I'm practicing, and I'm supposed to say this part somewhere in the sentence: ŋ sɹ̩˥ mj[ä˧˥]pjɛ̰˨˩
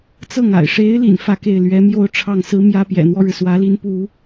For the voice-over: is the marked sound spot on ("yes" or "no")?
no